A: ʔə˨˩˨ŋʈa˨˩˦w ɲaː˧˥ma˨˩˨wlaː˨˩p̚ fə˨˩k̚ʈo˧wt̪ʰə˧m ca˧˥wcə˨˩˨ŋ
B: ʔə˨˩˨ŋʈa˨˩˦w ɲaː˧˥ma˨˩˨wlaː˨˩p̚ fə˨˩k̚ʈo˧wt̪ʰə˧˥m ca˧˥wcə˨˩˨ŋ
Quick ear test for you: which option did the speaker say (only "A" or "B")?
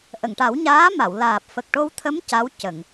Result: B